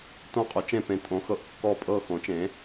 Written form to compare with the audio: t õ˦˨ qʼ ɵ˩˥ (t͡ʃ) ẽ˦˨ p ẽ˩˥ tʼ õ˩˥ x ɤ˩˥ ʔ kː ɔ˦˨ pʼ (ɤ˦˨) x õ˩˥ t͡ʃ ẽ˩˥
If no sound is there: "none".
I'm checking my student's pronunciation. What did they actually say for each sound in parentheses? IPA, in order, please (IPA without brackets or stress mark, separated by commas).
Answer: t͡ʃ, ɤ˦˨